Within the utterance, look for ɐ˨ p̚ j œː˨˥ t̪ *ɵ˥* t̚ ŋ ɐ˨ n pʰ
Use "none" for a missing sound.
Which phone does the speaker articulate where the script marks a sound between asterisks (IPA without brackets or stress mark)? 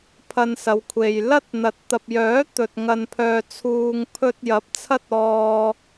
ɵ˨